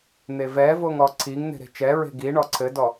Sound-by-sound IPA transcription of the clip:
n̪ e v ɛ v o ŋ ɔ ǀʰ i ŋ n̪ e̤ ɾ e̤ t͡ʃ ɛ ɹ e̤ ɡ i ɳ ɔ ǀʰ ɘ d ɔ

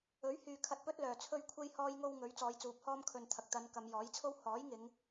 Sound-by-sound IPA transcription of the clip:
ɵ˨˥ ɥ h yː˨ kʰ ɐ˧ t̚ p ɵ˥ t̚ l œː˨ t͡sʰ ɵ˥ ɥ kʷʰ e˥ j h ɔː˥ j ŋ o˥ w ŋ ɵ˨˥ ɥ t͡s ɔː˨˧ j t͡s uː˨˥ p̚ h ɔː˥ m kʰ ɵ˧ n t̪ʰ ɐ˨ k̚ t̪ ɐ˨˧ n k ɐ˨˧ m j ɔː˨˥ j t͡sʰ o˥ w h ɔː˨˥ j ŋ ɪ˨˧ ŋ

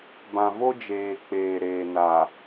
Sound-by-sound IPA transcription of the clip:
b ã˨ v o˦ d͡ʒ eː˨ k͡p eː˨ ɾ eː˨ n a˨

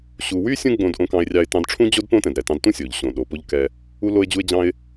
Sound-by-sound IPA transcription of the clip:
ɕ u˧ w y˥ sʲ ũ˥ ɡ͡b õ˧ d ʔ õ˧ k ɑ̃˧ ɪ̯ rʲ ɑ˧ ɪ̯ t ɑ̃˧ d ʈ͡ʂʰ ũ˥ d͡ʑ o˥ d p õ˥ t ɛ̃˩ d ɾ ɛ˩ t ɑ̃˧ d t ũ˥ sʲ o˩ ʎ ɕ õ˩ ɗ o˩ p o˧ ʎ k ɛ˧ | u˧ l o˧ ɪ̯ d͡ʑ u˧ ɪ̯ d͡ʑ ɑ̃˧ ɪ̯

